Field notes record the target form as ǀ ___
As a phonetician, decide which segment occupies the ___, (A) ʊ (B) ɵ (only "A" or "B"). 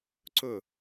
A